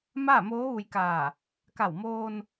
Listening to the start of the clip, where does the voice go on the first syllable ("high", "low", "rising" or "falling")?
falling